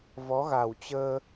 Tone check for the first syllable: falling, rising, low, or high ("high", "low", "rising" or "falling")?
rising